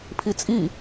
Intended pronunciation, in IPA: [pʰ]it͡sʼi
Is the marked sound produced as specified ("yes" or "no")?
yes